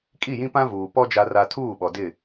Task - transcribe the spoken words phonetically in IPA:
kʼ i˦˨ j ĩ˦ p ã˦ v uː˨ p ɔ˦ d͡ʒ a˨ r a˨ tʰ uː˦˨ ɓ ɔ˨ d ɪ˦˨

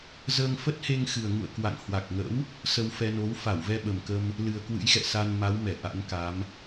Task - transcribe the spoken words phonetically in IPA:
z əː˧ ŋ f ə˦˥ t̚ h e˧ ŋ x ɨ˨˩ ə̯ ŋ ṵ˧˨ ə̯ k w a̰˧˨ ŋ h w a˨˩ k̚ ŋ ə̰˧˥ w | s ə˧ w f ɛ˧ n o˨˦ w f a˧˩ w v ɛ˧ ɓ ə˨˩ m k ə˧ m | l ɨ˨˩ ə̯ k w ɨ̰˧˥ j x ɛ̰˧˨ s a˧ n m a˨˦ w m ɛ˧˩ ʔ a̰˧˥ n k a˨˦ m

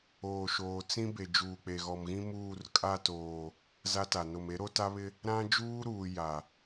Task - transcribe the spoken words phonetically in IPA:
oː˨ ʃ oː˨ t͡s ĩ˦ b e˨ d͡ʒ uː˨ k͡p e˨ ɣ ɔ˨ m ɣ ĩ˦ m uː˦˨ r kʼ a˦˨ t oː˨ | z a˦ t a˨ n o˨ m e˨˦ ɾ o˦ t a˦ β ɪ˦ | ɾ ã˦ d͡ʒ uː˦ ɾ uː˨ j a˨

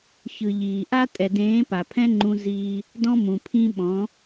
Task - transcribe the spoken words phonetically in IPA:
ç ɯ˨ ʎ iː˨ ʔ a˦ tʼ ɛ˨ d ẽː˨˦ p a˨ pʰ ɛ̃˦ ŋ͡ǃ ũ˦ z iː˦ | d ɔ̃˦ m ũ˨ pʰ ĩ˦ ɓ ɔ̃˨˦

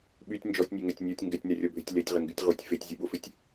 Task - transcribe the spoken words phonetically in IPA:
ɓ y tʲ n d͡ʒ ɔ tʲ nʲ e ŋ ɛ tʲ nʲ ɔ tʲ ŋ ɡ ɛ tʲ n ɛ rʲ ɔ bʱ ɪ tʲ l e tʲ ʁ ɪ ŋ ɡ y tʲ ʁ u tʲ f e tʲ zʲ u ɓ o f ɪ tʲ

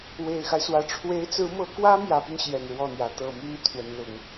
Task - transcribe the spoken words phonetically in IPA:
w e˨˩ ɪ̯ x a˦ ɪ̯ s w ä˨˩ ʈ͡ʂʰ w e˧˥ ɪ̯ t͡s ɹ̩˧˥ m ɤ˧˥ k w ä˥ m j ä˧˥ p y˧ n ɕ j ɛ˨˩ n ɻ w ɔ˥˩ n̪ j ä˧˥ t̪ ɤ˨˩ m y˥ n t̪ʰ w ə˧˥ n l ʊ˧˥ ŋ

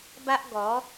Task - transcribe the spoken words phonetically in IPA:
b a˦ ʔ ɡ ɔ˨˦

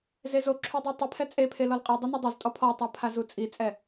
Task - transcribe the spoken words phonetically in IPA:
z e z o ǁʰ u dˤ i tˤ i pʰ ɛ t͡sʼ e pʰ e l ɔ l qʼ e dˤ ɛ n o dˤ o z tʼ ɔ pʰ ɔ tˤ a pʰ a z u t͡sʼ i t͡sʼ ɛ

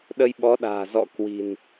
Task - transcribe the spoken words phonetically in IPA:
ɗ ə˧ j ɓ ɔ˨˦ ɗ a̤ː˨˩ z ɔ̰˧˨ k w i̤˨˩ n

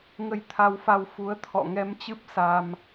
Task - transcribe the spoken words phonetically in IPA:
ŋ ə˧ j t̪ʰ a˧ w f a˧ w f u˨˦ ə̯ t̪ʰ ɔ̰˧˨ ŋ ɛ˧ m t͡ɕ ɨ˦˥ p̚ s a˧ m

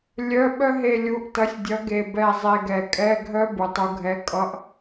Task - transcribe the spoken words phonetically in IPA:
lʲ œ˧˥˧ ɓ œ˥ ɦ e˦˨ lʲ u˨˥ ʔ t ʌ˨˥ sʲ dʲ ʌ˨˥ ɡ e˨˩ b ɛ˦˨ zˤ e˦˨ ɡ ɛ˨˩ kʼ ɛ˧˥˧ ɡʱ œ˥ b u˩˧ tˤ u˨˥ ɡʱ ɛ˧˥˧ kʼ ʌ˧˥˧ ʔ

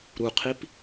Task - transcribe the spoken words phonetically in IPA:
ɾ u qʰ i p

